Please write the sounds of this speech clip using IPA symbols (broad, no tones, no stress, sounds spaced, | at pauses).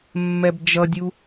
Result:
mː ɛ b d͡ʒ ʌ dʲ u